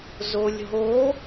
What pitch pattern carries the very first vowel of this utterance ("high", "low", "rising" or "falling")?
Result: low